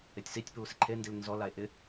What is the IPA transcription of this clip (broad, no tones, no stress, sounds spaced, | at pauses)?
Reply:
e tʲ s i tʲ p uː s ɪ ǃʰ e n d i l n z ɔ l a e̯ ʔ ɪ